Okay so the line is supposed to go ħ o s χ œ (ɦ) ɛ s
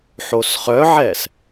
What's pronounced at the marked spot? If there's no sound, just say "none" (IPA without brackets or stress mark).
ʕ